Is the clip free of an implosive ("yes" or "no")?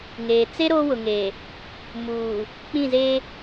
yes